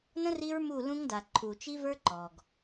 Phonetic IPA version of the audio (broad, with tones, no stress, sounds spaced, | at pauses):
n ə̃˦ r i˦ ɹ m u˦˨ l ũ˦ ŋ d a˨ ǃʰ u˨ t͡ʃ i˦ v ə˞˦ ǃ ɔ˨ ɡ